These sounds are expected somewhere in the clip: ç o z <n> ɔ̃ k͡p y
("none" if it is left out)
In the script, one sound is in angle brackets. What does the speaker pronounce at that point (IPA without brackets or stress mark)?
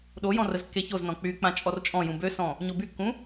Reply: n